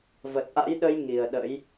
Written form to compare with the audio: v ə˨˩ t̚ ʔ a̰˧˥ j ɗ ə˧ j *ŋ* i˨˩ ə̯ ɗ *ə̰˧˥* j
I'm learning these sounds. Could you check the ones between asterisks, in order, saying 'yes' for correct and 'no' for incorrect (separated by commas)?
yes, yes